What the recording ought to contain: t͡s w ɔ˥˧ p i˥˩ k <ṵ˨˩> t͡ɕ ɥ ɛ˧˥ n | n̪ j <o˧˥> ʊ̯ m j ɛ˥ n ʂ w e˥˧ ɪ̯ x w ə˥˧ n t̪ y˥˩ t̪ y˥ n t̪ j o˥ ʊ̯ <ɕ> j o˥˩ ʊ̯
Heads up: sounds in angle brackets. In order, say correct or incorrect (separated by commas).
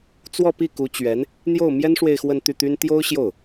incorrect, incorrect, correct